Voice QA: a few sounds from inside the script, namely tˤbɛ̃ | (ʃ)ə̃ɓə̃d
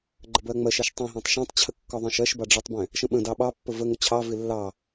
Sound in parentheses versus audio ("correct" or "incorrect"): correct